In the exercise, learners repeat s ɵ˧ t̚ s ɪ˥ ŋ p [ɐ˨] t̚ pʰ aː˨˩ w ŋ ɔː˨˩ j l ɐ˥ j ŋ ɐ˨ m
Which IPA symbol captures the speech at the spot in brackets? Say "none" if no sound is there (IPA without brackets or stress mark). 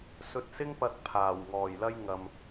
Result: ɐ˧